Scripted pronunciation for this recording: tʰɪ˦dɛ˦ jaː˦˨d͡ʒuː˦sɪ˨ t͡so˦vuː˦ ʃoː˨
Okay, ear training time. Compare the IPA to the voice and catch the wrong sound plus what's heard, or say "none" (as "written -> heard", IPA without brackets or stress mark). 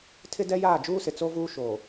none